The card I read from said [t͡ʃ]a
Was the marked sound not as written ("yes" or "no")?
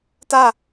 yes